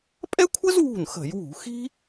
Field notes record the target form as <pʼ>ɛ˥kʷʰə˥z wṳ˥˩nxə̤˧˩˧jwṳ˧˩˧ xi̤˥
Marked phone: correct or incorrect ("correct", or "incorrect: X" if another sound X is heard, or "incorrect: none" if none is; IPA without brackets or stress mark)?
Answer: correct